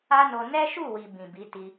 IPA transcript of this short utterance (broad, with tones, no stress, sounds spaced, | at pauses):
a˦ n o˧ n ɛ˦ ʃ u˦˨ w i˨ b ĩ˨ b i˨˦ t i˧